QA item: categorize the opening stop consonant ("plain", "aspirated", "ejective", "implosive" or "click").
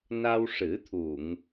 aspirated